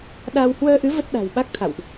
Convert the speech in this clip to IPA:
ɗ a˧ w h w əː˧ ʔ ɨ˨˦ v ə˦˥ t̚ ɗ a̤˨˩ w ɓ a˦˥ k̚ t̪ʰ a̰˧˨ w ʔ

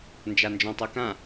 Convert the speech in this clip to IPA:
n d͡ʒ a n d͡ʒ ɔ̃ tˤ o k ã

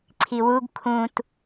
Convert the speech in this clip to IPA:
ǀʰ i w u ɡ kʰ ũ t

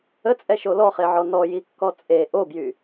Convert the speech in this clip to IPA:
ə t͡sʼ ɛ ʃ o l ɔ χ e ʕ ɔ n ɔ j i kː ɔ t͡sʼ e ʔ o b j y

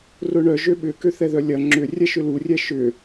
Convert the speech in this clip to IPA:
r ʊ ɳ œ ʒ ø ɓ ʏ k ø θ ɛ ð œ lʲ ɐ ŋ͡ǁ ʏ rʲ ɛ ʃ ʏ l u rʲ ɛ ʃ ʏ

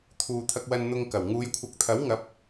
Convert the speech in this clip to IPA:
t̪ʰ uː˨ t̪ʰ ɐ˧ k̚ w ɐ˧ n n̪ ʊ˧ ŋ k ɐ˨˩ w ŋ uː˨˧ j kʷʰ ɐ˨˥ k̚ t̪ʰ ɐ˨˥ w ŋ ɐ˨˥ p̚

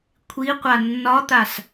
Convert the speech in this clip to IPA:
kʷʰ i qʷ a nː ɒ t̪ a s

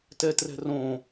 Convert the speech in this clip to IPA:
t ɛ t r ɛ̤ r õ

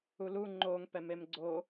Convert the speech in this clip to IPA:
u l u ŋ͡ǃ o ŋ p ɛ m e m ɡ͡ǀ o

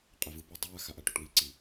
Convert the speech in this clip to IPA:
qʼ ɛ v ɯ p ɛ dˤ ɯ w a x a ʔ a ʈ u ʈ w i ǀ i

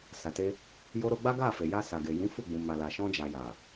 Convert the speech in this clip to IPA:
s a˨ t e˧ | j o˧ ɾ o˧ ɡ͡b a˦ ɡ a˦˨ f e˨ j a˧ s a˨ ɡ e˨ j ĩ˨˦ f u˦˨ ɡ͡b ũ˨ m a˨ l a˨ ʃ ɔ̃˧ d͡ʒ a˨ j a˨

